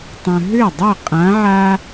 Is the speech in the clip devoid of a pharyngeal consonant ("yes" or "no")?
no